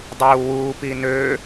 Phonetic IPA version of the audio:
dˤ uː w uː p i n ø

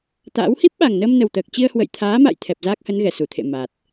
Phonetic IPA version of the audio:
t̪ a̰ː˧˥ w h i˦˥ p̚ ɓ a˨˩ ŋ n əː˧ m n ə˨˩ w t̪ əː˨˩ k̚ t͡ɕ i˧ ə̯ h w ə̰˧˨ j t̪ʰ aː˨˦ m a̰˧˨ j t̪ʰ ɛ˨˩ p̚ z aː˦˥ k̚ h ə˨˦ n ɣ ɛ˧˩ s u˧˩ t̪ʰ ḛ˧˨ m a˨˩ t̚

